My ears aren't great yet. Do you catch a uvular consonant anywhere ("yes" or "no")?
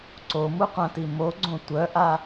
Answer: yes